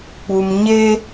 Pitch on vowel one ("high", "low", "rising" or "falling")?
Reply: high